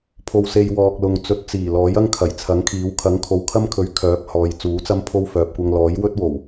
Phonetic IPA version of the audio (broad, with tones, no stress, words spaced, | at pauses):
pʰo˧wse˧j wɔː˨k̚lʊ˨ŋ t͡sɵ˨˥t̚t͡siː˨˩lɔː˨˥jɐ˥ŋ kʰɐ˨˩jt͡sʰɐ˨˥ŋkʰiː˨˥w kʰɐ˨˥ŋkʰo˨wkʰɐ˥mkʰɵ˨˧ɥ kʰœː˨˥p̚hɔː˨˧j t͡suː˨˥t͡sɐ˥mpʰo˥wfœː˨p̚ kʷɐ˧ŋlɔː˨˥jwɵ˥t̚wo˨˩w